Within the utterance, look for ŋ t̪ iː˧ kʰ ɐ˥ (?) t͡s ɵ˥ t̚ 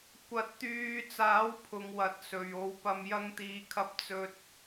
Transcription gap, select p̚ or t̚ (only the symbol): p̚